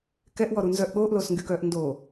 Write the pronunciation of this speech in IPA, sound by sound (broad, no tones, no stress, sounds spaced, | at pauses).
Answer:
k ɛ ʔ w ɔ ɾ u n z œ ʔ ɠ oː ʔ l oː s ŋ ɡ y k œː ʔ n d oː